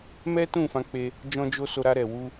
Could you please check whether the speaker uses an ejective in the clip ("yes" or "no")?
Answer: no